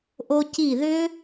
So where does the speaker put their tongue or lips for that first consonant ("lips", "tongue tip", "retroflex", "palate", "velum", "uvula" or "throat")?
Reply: throat